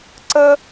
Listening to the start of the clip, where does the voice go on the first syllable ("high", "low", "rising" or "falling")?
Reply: high